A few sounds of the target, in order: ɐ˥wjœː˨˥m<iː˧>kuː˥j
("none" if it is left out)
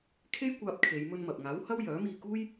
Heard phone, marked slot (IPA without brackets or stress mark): iː˧